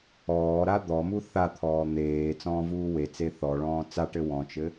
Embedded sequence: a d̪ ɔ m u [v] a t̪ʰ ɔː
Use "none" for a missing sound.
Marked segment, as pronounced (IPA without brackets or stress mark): θ